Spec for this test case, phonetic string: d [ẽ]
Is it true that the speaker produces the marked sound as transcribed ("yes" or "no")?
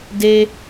no